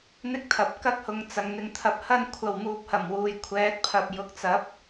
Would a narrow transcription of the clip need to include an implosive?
no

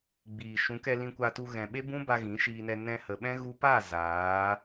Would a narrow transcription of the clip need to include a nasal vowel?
yes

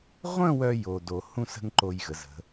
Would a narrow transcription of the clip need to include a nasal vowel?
yes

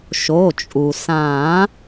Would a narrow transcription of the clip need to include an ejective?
yes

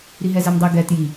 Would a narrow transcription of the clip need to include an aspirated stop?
no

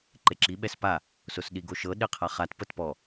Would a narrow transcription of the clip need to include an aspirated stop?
yes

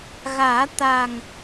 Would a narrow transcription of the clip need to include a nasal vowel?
no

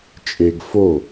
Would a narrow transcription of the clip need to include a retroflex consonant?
no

